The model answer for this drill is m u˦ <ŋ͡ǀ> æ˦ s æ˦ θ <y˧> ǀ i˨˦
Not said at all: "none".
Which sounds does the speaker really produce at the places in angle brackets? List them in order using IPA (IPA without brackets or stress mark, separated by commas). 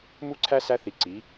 ǀʰ, i˧